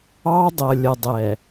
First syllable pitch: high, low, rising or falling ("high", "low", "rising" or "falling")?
high